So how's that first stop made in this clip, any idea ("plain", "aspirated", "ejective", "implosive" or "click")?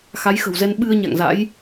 implosive